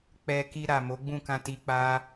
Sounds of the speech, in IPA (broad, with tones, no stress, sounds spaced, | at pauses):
k͡p ɛ˧ k i˧ ɾ a˨ m o˨˦ ɡ͡b ũ˦˨ k ã˧ t i˧ k͡p a˦